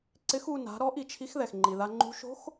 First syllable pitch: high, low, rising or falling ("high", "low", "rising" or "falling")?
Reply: rising